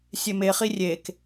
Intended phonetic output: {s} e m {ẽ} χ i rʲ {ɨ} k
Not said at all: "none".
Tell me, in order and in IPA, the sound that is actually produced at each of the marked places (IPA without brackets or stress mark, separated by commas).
sʲ, e, e